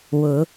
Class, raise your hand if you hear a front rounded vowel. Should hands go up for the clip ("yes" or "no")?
no